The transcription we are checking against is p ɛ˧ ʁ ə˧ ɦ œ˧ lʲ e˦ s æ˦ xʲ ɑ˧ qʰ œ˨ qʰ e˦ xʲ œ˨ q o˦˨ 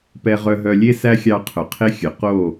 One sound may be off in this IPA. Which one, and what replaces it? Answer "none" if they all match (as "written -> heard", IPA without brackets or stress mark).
ə˧ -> œ˧